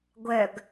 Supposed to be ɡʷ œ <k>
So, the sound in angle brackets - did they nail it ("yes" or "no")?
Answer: no